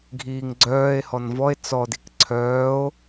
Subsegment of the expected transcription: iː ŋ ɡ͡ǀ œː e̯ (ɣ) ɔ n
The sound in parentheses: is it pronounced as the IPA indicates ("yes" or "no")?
no